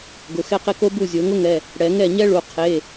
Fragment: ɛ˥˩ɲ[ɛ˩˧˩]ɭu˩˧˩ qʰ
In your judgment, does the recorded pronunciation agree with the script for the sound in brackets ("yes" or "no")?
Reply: no